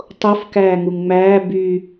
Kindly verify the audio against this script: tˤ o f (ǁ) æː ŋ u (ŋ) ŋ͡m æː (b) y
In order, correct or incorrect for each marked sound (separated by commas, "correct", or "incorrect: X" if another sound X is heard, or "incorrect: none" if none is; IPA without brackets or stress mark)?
incorrect: k, correct, correct